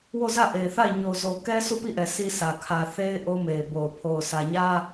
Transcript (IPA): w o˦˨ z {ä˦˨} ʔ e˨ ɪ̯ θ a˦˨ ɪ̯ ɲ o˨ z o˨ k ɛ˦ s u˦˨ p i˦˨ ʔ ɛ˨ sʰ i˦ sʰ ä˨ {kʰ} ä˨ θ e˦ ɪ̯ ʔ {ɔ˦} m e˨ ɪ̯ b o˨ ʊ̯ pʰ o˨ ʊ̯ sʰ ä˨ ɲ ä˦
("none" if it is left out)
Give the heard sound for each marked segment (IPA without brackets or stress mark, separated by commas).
ä˦˨, kʰ, o˦